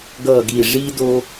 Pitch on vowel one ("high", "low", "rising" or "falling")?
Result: low